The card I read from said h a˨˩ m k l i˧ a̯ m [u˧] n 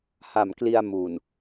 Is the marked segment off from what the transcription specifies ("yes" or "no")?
yes